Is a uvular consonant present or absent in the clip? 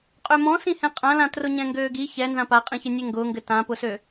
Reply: present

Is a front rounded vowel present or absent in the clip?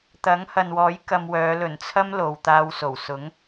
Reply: present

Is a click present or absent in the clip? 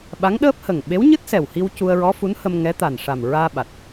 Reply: absent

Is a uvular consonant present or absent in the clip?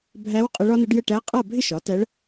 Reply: present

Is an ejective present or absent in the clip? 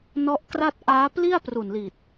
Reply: absent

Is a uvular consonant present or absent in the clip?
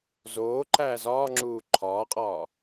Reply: present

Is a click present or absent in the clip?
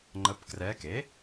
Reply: present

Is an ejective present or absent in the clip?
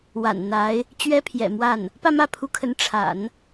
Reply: absent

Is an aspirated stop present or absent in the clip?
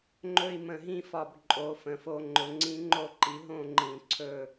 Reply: present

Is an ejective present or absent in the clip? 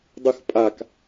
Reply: present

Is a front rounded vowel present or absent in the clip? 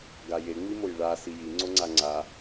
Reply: absent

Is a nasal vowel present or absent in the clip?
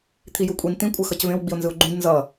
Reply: present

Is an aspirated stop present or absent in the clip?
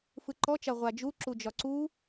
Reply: absent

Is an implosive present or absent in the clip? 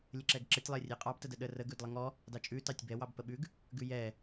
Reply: present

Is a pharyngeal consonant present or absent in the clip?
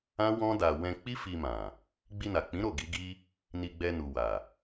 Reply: absent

